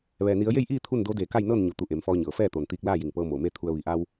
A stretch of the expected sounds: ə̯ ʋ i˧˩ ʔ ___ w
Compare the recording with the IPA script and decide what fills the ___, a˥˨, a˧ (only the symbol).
a˧